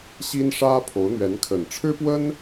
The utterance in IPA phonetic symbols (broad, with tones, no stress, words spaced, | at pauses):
ɕi˥nʂä˥ pʰo˧˥ʊ̯n̪ɥɛ˧˥nkʰə˨˩n ʈ͡ʂʰɻ̩˥pwə˥n